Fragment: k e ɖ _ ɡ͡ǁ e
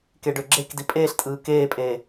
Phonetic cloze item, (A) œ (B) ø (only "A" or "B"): B